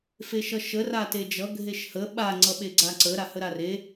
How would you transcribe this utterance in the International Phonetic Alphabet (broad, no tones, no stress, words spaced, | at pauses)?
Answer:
feʃʌʃə rated͡ʒʌ ɡʱeʃhə ɓa ŋ͡ǀʌɓeɡ͡ǀaǀə ɾahəɾare